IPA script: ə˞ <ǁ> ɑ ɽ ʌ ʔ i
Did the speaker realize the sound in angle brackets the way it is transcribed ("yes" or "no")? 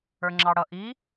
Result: no